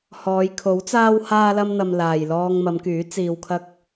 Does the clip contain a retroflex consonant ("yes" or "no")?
no